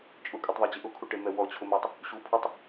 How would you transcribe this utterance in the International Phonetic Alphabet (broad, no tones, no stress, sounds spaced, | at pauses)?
t͡ʃʼ ʊ kʼ u tˤ ðˤ a d͡ʑ ɪ ʔ ʊ kʰ u ʈ e m ɛ w ɔ t͡ɕʰ ʊ m a tˤ | ɕ u pʰ o tˤ